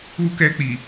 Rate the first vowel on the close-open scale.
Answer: close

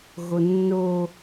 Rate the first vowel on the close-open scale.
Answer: mid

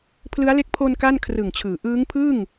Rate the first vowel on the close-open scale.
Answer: close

